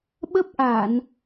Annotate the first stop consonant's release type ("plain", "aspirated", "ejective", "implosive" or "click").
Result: implosive